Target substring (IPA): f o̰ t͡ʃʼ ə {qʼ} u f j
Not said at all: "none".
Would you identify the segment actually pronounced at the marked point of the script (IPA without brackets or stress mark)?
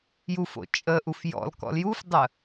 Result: ʔ